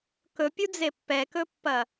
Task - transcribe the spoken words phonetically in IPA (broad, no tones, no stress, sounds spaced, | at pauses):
k ɵ pʲ u d͡z e pː ɛ k ɵ pː ɐ